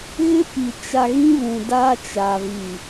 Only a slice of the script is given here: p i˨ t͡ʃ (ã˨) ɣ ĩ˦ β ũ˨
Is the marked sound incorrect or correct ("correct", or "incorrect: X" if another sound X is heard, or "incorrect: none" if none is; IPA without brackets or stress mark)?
incorrect: a˨